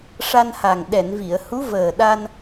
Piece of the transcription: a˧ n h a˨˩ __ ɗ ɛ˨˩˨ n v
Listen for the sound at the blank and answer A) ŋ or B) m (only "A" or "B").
A